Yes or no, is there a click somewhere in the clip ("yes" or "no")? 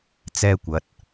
no